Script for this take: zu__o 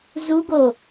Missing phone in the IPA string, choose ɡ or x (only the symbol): ɡ